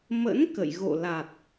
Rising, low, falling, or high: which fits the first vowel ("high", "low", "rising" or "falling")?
rising